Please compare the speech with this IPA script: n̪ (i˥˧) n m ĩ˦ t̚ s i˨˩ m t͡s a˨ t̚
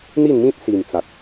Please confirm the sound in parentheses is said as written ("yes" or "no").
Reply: yes